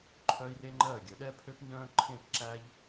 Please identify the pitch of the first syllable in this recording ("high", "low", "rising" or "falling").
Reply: high